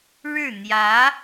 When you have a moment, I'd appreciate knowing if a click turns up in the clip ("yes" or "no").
no